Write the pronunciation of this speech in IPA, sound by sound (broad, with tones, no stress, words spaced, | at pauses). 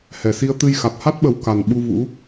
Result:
hɛ˨˩si˧ə̯ t̪ɨ˧jxa˨˩t̚ ha˦˥t̚ɓə˨˩w ka˨˩n ɓu˧vṵ˧˥